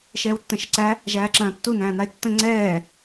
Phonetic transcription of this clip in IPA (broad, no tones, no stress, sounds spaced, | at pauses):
ʃ ɛː w tː ə̃ ʃ ə ǀ æ | ʒ æː ǁ ɐ̃ː tː u n æ̃ː n a e̯ tː ə̃ ŋ͡ǀ ɛː